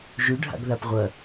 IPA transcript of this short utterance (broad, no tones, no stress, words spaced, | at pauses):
ʒʉɖʱa̰ɡ ðapʁʷɐ